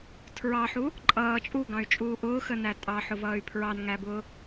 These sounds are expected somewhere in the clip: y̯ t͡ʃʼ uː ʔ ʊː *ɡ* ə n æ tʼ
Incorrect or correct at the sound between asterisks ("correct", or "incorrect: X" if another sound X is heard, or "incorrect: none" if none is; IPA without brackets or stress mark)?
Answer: incorrect: x